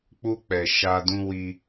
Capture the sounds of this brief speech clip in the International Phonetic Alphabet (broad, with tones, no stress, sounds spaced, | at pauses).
k͡p u˧ k͡p ɛ˨ ʃ a˧ d ũ˦ w i˧